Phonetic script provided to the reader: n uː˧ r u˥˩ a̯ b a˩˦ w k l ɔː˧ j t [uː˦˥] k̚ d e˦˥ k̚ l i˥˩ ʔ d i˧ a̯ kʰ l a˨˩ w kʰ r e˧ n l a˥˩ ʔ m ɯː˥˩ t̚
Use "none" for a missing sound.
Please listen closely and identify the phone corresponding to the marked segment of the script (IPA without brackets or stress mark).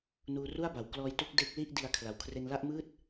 u˦˥